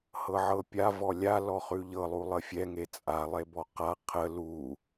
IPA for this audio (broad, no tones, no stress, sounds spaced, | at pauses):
h ɤ ʕ ɤ pʲ a v ɔ lʲ a l ɔ χ ʉ ʎ ɤ lˠ u lˠ ə fʲ ɛ ŋ e t͡sʼ a lˠ e b ɔ q a qʰ ə l u